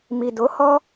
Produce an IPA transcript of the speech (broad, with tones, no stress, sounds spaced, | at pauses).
m i˨ d o˨˦ h ɔ˦